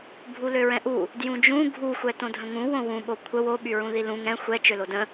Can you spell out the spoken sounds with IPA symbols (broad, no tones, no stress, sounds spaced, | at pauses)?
bʱ u l ø ɹ ɛ̃ ʔ u | d j ũ d͡ʒ ũ ɡʱ u xʷ ɛ t õ dʱ ə̃ ŋ ũ w õ w ũ ɓ o kʷʰ ə w o ɓ y ɹ ũ ð i l ũ ŋ ɛ̃ xʷ ɛ t͡ʃ ø l o d ə̃